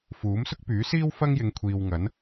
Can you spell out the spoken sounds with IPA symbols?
f uː˨˥ m s ʊ˥ k̚ p yː˨˥ s iː˥ w f ɐ˥ ŋ j ɪ˨˧ ŋ kʷʰ iː˨ w ŋ ɐ˨˥ n

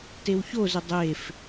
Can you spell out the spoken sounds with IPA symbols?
t e w ç o z ɪ dˤ e f

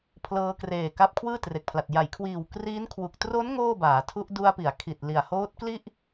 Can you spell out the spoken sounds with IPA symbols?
pʰ l ɤː˧ k r eː˨˩ k a˦˥ p̚ kʰ w ɯː˥˩ t r e˨˩ k̚ pʰ l a˨˩ t̚ j a˩˦ j kʰ w iː˨˩ w k r iː˦˥ n kʰ w u˨˩ k̚ t r o˦˥ n ŋ oː˥˩ b aː˩˦ tʰ u˦˥ ʔ d u˧ a̯ p i˩˦ a̯ kʰ i˨˩ t̚ l i˨˩ a̯ h oː˦˥ t̚ k l i˥˩ ʔ

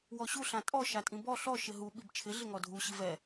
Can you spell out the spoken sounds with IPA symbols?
w ɔ ɕ u ɬ ã tʼ ɔ ʃ a tʼ ĩ b ɔ ɬ ɔ ʃ ɪ ɦ u ɓ i b t͡ʃʰ ɪ ɮ ɪ ŋ ɔ dʱ u ɕ i v ɛ

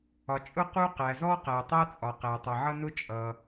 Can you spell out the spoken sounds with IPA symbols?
ɒ˩ t͡ʃʼ ʊ˥ q u˥ q æ˩ z ɔ˥ q æ˩ tˤ ɜ˥ t͡sʼ ɒ˩ q æ˩ tˤ ʌ˩ ʕ ʌ˥ n ʊ˥ t͡ʃʼ ʌ˩

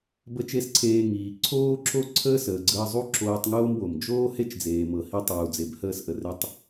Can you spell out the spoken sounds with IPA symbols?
b ə˥ t͡ʃ e˥ s ǀʰ eː˧ ŋ iː˩ ǀʰ oː˥ ǁ o˥ ǀʰ əː˥ s əː˩ ɡ͡ǀ əː˧ zˤ u˥ ǁ oː˧ tˤ ŋ oː˥ m w o˩ m d͡ʒ oː˥ h e˥ t͡ʃ d͡z eː˩ m ɤ˩ h i˧ tˤ uː˩ d͡z e˩ b h əː˧ s ʔ ə˩ r e˧ tˤ

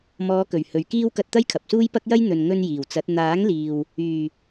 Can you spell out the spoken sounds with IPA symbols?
m ɔː˨˧ k ɵ˨˩ ɥ h ɵ˨ ɥ k iː˥ w k ɐ˧ t̚ t̪ ɐ˥ j kʰ ɐ˨ p̚ s uː˥ j p ɐ˥ k̚ j ɐ˥ j n̪ ɵ˨ n ŋ ɵ˧ n j iː˨˩ w t͡s ɐ˨˥ t̚ n̪ aː˨˥ ŋ l iː˨ w | yː˨˩

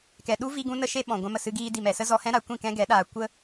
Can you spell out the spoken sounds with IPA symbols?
k ɛ˨ ɗ u˦ v i˧ ɡ ũ˧ n ə˧ ʃ e˧ ɓ ɔ̃˨ ɡʷ ã˧ m ə˨ s ɨ˧ ɡ iː˧ d i˨ m ɛ˨ s ə˦ z ɔ˧ h ɛ̃˦ ɾ a˧ kʷ ĩ˦˨ k ɛ̃˦ ɡ ɛ˨˦ ɗ aː˧ kʷ ə˦

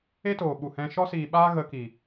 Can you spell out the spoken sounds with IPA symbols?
e˦ t oː˨ ɓ u˨ h ɛ̃˦ ʃ ɔ˧ s iː˨ ɓ aː˧ ɣ ə˧ k iː˨

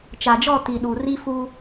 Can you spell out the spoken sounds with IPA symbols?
t͡ʃ aː˨ d͡ʒ ɔ˦˨ t i˨ ɗ u˨ r i˦ f u˦

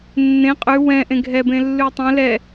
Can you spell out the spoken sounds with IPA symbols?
nː ẽ qʼ ʉ w ɛ̃ ʔ ẽ ɡʱ ɛ b ẽ lː ʉ tˤ ɛ̃ l ɛ

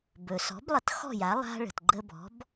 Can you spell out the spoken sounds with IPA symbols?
b ɵ˩ s ɔ̤˩˥ b lˠ ə˩˥ t x ɔ̤˥˩ j a˩˥ lˠ a̤˧ ɭ ə̤˩ t ɡ͡ǃ ə˧ b ɔ̤˩˥ b

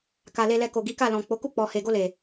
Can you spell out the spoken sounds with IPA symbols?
k a˨ l e˧ l ɛ˧ k o˨ ɡ i˨˦ k a˦˨ l ɔ̃˨ k͡p o˨˦ k u˦˨ k͡p ɔ˨ h e˨ ɡ o˧ l e˨

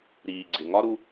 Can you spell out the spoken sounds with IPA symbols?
ɾ iː˨ ɡ͡ǀ ɪ˨ ŋ ɒ˦ ɾ u˧

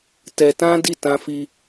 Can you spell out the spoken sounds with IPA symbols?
t ɛ˧ t ã˦ d i˦˨ t ã˧ f i˧

